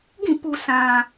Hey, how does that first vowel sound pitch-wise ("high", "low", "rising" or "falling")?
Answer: falling